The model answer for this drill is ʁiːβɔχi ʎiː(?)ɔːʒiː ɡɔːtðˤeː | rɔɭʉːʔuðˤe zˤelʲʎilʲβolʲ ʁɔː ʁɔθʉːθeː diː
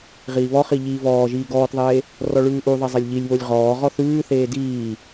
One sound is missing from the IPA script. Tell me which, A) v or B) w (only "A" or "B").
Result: A